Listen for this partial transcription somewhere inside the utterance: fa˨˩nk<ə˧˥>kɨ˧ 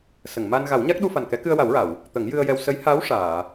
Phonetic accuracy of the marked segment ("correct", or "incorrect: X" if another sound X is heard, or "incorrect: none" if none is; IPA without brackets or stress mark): incorrect: ɛ˧˥